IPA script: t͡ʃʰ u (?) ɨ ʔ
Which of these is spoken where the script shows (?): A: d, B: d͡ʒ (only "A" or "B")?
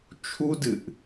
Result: A